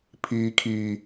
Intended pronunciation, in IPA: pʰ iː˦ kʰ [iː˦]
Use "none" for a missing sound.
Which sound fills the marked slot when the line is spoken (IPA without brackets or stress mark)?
iː˦